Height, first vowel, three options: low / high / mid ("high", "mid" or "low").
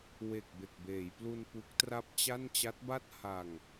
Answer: mid